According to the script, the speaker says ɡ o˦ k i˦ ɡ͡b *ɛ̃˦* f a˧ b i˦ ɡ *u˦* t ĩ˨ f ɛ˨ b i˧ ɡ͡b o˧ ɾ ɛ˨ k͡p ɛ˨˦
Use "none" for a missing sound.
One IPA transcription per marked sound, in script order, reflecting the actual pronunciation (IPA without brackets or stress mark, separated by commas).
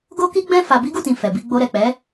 ɛ̃˦, u˦˨